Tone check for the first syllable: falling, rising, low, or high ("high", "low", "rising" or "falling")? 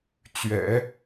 low